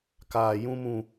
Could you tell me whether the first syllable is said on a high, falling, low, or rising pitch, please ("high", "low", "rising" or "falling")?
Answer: low